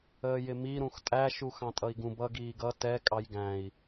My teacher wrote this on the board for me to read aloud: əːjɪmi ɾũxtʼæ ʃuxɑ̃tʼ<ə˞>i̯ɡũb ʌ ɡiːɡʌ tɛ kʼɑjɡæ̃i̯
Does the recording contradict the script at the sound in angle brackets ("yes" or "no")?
yes